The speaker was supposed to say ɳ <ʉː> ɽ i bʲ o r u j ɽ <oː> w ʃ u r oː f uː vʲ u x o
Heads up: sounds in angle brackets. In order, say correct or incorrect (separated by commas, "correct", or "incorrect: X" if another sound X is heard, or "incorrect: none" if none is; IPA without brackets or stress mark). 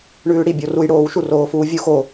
correct, correct